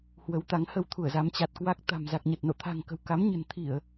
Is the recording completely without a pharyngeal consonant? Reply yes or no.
yes